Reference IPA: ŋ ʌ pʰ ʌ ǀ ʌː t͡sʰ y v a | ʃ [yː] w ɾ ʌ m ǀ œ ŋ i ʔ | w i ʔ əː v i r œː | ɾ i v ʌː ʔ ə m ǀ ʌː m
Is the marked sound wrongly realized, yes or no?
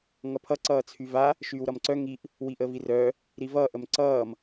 no